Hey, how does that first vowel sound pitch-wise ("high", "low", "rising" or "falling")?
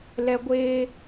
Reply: high